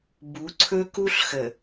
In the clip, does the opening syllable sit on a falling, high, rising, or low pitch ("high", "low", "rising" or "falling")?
rising